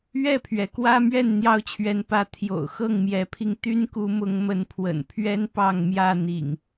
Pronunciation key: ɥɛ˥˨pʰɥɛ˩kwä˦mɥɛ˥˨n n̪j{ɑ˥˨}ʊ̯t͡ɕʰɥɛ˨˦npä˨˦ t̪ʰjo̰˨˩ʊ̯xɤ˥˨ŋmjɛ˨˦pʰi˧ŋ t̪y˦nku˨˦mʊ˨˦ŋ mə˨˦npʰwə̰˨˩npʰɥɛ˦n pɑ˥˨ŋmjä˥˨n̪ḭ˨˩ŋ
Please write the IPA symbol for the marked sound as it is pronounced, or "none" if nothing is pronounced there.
ɑ˥˨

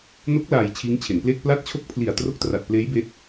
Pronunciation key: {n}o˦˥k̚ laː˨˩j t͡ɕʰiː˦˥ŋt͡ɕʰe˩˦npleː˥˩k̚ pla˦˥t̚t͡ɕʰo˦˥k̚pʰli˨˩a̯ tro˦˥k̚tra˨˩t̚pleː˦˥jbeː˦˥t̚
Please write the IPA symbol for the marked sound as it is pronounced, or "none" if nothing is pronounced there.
n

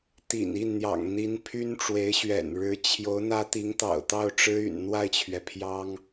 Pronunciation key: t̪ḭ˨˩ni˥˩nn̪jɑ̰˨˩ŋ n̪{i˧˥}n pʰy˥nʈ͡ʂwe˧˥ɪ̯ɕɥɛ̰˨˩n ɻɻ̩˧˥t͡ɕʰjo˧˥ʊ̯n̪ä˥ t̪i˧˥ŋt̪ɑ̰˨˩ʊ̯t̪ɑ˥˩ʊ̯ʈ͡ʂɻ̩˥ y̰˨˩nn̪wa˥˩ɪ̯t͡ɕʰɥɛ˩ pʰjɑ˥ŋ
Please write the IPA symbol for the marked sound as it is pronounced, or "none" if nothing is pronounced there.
i˧˥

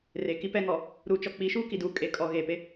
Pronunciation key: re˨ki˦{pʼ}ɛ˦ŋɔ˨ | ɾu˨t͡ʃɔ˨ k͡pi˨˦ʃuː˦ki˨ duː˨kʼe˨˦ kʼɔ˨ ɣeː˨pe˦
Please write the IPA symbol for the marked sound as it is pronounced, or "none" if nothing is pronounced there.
p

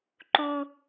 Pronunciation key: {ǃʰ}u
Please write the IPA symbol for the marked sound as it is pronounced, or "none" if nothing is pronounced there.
ǃ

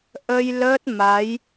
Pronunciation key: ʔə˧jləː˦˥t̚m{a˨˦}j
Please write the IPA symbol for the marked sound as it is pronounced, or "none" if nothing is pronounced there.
a˨˦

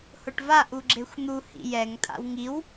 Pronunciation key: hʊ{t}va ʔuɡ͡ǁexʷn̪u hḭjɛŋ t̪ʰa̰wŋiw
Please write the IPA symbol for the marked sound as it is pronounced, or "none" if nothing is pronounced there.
ʈ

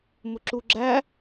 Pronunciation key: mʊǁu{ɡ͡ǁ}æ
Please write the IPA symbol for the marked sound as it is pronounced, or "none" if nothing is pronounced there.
ɡ͡ǁ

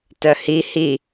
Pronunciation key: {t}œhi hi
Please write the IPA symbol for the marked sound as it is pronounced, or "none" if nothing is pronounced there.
t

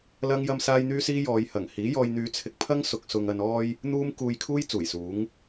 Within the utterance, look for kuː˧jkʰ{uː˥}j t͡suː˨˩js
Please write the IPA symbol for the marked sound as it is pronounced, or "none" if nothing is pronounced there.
uː˥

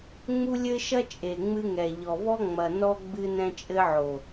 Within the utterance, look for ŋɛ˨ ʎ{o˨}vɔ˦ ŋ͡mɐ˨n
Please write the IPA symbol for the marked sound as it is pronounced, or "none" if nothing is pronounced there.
ɔ˨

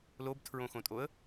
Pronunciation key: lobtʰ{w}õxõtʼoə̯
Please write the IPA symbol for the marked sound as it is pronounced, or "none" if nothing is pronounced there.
ɹ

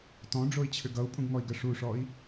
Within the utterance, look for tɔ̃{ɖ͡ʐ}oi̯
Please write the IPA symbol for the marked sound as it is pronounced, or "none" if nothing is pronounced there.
ɖ͡ʐ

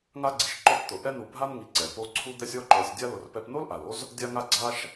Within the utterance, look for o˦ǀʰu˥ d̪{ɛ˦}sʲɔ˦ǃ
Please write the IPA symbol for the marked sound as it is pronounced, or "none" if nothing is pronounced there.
ɛ˦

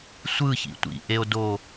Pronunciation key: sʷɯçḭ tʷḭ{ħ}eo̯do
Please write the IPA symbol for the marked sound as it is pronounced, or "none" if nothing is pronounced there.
ʔ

